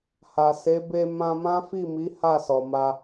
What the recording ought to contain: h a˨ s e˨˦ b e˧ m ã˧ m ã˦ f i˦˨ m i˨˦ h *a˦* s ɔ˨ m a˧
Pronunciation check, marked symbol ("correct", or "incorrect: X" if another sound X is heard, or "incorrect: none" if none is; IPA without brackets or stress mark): incorrect: a˦˨